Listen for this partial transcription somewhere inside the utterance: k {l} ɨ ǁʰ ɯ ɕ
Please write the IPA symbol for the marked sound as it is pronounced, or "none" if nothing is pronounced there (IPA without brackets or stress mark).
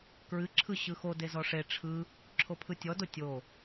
ɹ